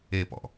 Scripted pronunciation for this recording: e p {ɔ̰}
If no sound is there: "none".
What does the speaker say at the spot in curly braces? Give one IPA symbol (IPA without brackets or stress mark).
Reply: ɔ̰